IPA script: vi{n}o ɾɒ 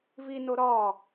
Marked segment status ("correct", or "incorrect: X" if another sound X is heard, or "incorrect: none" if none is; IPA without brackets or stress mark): correct